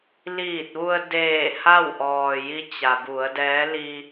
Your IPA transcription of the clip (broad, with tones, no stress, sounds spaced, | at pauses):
l iː˧˩ t̚ ʋ u˧ ə̯ d eː˧˩ h a˥˨ w ʔ ɔː˩ j i˧˥ t͡ɕ a˩ b u˩˧ ə̯ d ɛː˧˥ l i˧